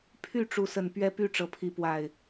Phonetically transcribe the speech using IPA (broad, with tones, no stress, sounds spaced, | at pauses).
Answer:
pʰ y˥˨ ʈ͡ʂ u˨˦ s ə˨˩ n p ɥ ɛ˦ p y˥˨ ʈ͡ʂ ɤ˨˦ pʰ i˨˦ p w a˨˩ ɪ̯